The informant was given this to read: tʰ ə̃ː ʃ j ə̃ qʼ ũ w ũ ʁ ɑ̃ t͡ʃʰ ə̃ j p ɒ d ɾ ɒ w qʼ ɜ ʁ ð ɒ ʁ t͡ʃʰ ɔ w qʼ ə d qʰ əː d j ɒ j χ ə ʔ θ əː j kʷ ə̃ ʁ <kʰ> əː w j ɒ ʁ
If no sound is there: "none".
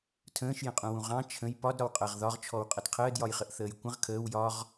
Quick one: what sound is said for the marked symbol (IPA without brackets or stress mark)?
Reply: kʰ